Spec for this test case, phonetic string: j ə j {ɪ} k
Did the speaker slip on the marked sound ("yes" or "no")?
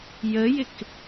no